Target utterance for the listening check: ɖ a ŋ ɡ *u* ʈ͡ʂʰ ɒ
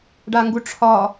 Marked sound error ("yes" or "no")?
no